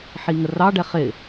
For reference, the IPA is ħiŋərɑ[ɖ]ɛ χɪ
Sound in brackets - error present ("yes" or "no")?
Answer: no